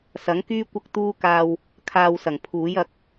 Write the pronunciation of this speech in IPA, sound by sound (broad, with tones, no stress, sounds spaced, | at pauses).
s ɐ˨˥ ŋ k yː˥ kʷ ɐ˥ k̚ t̪ uː˥ k aː˧ w | kʰ aː˧ w s ɐ˨˩ ŋ pʰ uː˨˥ j ɐ˨˥ k̚